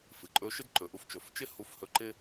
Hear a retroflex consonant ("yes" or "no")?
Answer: no